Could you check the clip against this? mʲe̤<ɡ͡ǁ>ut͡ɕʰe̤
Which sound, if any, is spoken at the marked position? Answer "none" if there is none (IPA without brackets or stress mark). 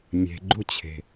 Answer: ɡ͡ǃ